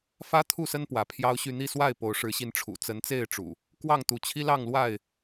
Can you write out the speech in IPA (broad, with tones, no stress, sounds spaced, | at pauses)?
f ä˦ t̪ʰ u˥˨ s ə˦ n p w ä˨˦ pʰ j ɑ˦ ʊ̯ ɕ y˥˨ n̪ i˥˨ s w a˥˨ ɪ̯ p o˨˦ ʊ̯ ʂ ɻ̩˨˦ ɕ i˧ n ʈ͡ʂʰ ṵ˨˩ t͡s ə˨˦ n t͡s e˥˨ ɪ̯ ʈ͡ʂ ṵ˨˩ | k w ɑ˥˨ ŋ t̪ u˨˦ t͡ɕʰ i˦ l ɑ˥˨ ŋ l w a˥˨ ɪ̯